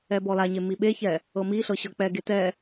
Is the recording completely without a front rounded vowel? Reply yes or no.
yes